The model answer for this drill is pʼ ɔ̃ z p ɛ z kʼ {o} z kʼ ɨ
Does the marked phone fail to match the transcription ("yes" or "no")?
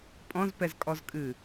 yes